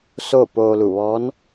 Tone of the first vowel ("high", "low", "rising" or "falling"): falling